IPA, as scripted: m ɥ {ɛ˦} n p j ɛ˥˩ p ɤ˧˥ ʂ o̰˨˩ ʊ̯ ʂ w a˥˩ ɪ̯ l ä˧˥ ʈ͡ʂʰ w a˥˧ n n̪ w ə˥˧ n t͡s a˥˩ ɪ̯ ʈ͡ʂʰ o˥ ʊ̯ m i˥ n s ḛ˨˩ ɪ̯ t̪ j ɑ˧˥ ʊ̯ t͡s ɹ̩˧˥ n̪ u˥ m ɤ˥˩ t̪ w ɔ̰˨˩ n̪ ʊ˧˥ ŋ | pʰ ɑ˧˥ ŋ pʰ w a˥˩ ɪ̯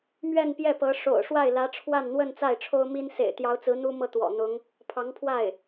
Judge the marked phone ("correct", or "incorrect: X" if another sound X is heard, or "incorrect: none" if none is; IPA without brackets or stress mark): incorrect: ɛ˥˧